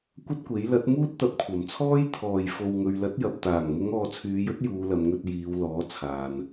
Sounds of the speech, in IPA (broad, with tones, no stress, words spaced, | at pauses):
kʷɐ˥t̚kʷe˨˥j lɐ˨˥t̚ muː˥t̚t̪ɐ˨˥p̚kʷʰɐ˨˩mt͡sʰɔː˥j t̪ʰɔː˨˩jfo˨wŋɵ˨ɥ lɐ˨˥t̚jɐ˨p̚t̪aː˨˩ŋmʊ˨˧ŋ ɔː˨˧t͡sʰyː˨˧jɵ˥t̚ juː˨˧lɐ˨˧m ŋɵ˧t̚jiː˨˧w lɔː˨˥t͡sʰaː˨n